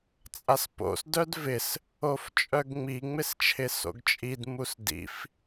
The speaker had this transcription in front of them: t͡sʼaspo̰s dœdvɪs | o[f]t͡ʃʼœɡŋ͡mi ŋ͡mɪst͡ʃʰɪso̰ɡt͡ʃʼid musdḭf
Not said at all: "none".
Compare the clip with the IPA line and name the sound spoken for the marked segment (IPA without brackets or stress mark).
f